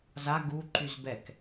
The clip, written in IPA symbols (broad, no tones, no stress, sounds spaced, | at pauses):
z a ɡ u ǃ y z b ɛ k